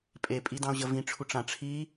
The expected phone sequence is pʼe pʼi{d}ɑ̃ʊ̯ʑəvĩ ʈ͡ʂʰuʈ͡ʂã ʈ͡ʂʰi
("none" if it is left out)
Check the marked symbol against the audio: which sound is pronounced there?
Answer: d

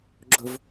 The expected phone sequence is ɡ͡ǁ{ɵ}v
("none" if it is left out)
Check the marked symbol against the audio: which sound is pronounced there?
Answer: ɵ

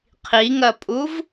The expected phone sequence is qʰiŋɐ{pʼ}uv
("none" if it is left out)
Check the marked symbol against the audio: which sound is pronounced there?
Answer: pʼ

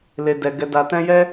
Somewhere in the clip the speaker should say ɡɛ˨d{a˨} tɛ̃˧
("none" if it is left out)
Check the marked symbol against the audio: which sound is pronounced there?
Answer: a˨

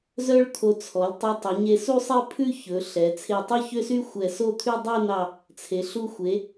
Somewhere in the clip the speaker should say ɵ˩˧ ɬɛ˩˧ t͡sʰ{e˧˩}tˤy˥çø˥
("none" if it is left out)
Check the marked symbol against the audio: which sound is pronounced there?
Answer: e˧˩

